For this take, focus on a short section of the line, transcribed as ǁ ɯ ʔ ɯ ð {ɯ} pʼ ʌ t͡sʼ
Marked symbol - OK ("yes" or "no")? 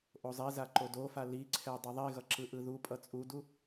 no